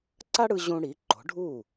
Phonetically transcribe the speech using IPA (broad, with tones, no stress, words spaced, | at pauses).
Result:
ǀa˥ɽɯ˧ ʑũ˧ ɽi˩˥ǃo̤˩˥ɖʱuː˥˩